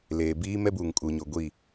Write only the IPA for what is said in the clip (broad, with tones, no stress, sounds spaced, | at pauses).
l eː˨ b iː˦ m ɛ˦ b uː˨ ŋ kʼ uː˨ ɲ o˨ ɡʷ i˦˨